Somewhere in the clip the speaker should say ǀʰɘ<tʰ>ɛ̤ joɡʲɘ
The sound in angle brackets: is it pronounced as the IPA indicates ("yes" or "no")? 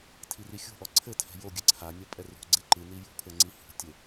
yes